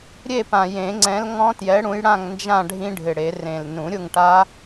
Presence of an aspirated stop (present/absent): absent